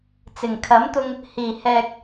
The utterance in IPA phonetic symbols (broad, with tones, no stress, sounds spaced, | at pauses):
t͡s ɪ˨˩ ŋ kʰ ɐ˨˥ m t̪ ʊ˧ ŋ | h iː˨˩ h ɛː˨ k̚